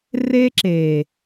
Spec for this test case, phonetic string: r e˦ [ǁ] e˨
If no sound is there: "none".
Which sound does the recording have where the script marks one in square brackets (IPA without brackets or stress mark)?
ǁ